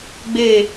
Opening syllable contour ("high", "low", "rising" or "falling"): falling